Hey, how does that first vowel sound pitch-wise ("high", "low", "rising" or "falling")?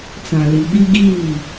low